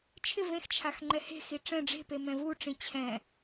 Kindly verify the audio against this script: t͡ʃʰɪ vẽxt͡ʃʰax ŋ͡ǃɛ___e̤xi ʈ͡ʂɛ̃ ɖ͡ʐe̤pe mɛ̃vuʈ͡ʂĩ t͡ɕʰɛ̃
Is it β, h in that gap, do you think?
h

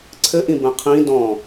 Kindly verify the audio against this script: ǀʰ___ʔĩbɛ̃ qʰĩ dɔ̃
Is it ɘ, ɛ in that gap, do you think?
ɘ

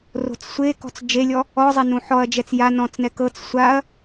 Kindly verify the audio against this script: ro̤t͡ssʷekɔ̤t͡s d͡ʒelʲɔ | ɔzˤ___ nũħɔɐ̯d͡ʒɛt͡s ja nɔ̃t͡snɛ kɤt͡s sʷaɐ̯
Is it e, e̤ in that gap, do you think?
e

